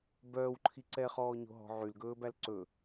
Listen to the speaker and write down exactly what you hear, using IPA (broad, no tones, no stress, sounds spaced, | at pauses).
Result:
b œː w ǃʰ i ǀ ɛ χ ɔː ɲ o̤ ɦ ɔ̤ ʕ y l ɡ ɵː b æ l ǀ ɵ